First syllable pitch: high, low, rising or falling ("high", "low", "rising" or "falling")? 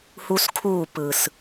high